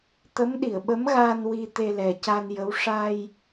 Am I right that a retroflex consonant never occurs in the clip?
no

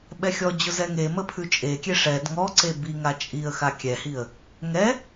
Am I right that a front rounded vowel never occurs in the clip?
yes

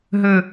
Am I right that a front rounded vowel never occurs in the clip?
no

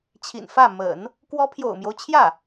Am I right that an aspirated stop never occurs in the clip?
no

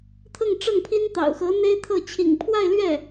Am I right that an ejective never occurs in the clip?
yes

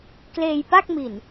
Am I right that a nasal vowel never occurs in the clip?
yes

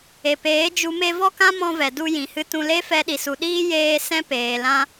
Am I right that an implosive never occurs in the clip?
no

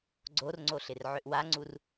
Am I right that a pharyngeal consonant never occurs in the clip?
no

